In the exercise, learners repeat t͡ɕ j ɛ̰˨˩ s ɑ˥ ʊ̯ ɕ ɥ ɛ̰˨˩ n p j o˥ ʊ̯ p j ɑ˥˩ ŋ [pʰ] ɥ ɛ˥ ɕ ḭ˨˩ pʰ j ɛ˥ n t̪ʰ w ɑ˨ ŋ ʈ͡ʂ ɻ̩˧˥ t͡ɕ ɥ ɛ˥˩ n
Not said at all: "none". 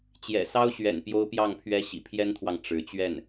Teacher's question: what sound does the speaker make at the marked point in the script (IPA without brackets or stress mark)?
pʰ